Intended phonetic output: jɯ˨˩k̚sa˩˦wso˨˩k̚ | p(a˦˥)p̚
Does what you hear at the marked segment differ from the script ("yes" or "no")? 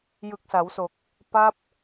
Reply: no